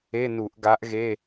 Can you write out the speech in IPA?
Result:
e˧˥˧ n u˧˩˧ ʔ ɡ a˧˥ ʔ ɣ e˧˥˧

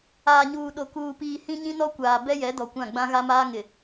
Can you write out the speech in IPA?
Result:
aː˨ ɲ uː˨ ɗ o˨ k uː˨ p iː˨ h ĩ˦ ɲ ĩ˦ n ɔ˦ kʷ aː˨ b ɛ˦ j ɛ˨˦ d ɔ˨ kʷ ã˦˨ ɡ͡b ã˦ ɣ a˦ m aː˦ ŋ ɪ˨

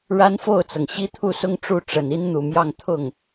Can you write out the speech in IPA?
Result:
ɻ a˥ n f o˥˩ ʊ̯ t͡s ɤ˩ ŋ ɕ i˥ t̪ʰ u˥˧ s ʊ˥˧ ŋ ʈ͡ʂ u˥˩ ʈ͡ʂ ə˨˩ n i˥ n n̪ u˨˩ m j ɑ˥˧ ŋ t̪ʰ ʊ˥˩ ŋ

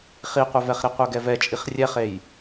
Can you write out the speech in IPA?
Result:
χ i qʷ œ v ɛ χ ɾ i qʷ œ ɡ ɛ v ɛ t͡ʃʼ i χ rʲ ɛ χ e j

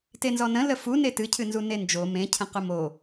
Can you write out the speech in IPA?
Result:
t e n z ɔ n ə̃ l ə f u n e t ɨ cʰ ɨ n z u n e n d͡ʒ o m ẽ cʰ ə̃ q ʊ m o

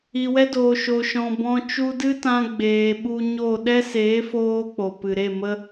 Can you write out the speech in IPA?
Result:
i˨ w ɛ˦ d oː˨ ʃ o˨ ʃ ɔ̃˨ b ɔ̃˧ t͡ʃ u˧ d ɨ˦ t ã˧ ɡ͡b eː˨ ɓ u˧ ɲ o˦˨ ɗ ɛ˦ s eː˨˦ f oː˧ k͡p o˨ p ɨ˨ ɾ e˦˨ m ə˦

